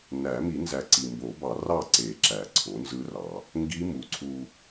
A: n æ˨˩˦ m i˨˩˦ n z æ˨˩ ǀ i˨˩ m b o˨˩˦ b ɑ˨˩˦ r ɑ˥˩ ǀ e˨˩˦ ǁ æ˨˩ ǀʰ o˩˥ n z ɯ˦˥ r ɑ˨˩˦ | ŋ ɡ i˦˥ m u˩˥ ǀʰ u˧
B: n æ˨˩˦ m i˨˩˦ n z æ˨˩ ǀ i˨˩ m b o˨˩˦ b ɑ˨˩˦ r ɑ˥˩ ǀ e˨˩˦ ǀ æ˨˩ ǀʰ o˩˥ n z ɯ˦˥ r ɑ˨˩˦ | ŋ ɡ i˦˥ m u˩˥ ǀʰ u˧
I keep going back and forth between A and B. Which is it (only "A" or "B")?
A